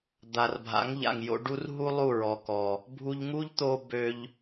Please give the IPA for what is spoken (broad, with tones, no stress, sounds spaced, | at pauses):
d̪ a˨ r bʱ a̰˨˦ ŋ ʎ a̰˨ ŋ j o̰˧ ɖ u˦ r ɦ u˦ lˠ u˦˨ ɹ ɔ˨ k ɔ˨ | bʱ u˧ ʎ ŋ u˦ ʎ t̪ o˧ b ø˧ ʎ